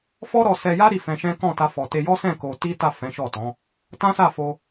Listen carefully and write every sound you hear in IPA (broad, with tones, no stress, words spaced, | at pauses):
fɔ˦ɾɔ˧sɛ˧ja˦ ɾi˦˨fɛ̃˧ʃɛ̃˦ kɔ̃˦˨ta˧ fɔ˨te˧jɔ˦sɛ̃˦˨ ko˧ ti˦ta˦˨ fɛ̃˨˦ʃɔ˦˨tɔ̃˨˦ | tã˦sa˦˨fo˧